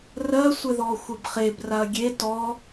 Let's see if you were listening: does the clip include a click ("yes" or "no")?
no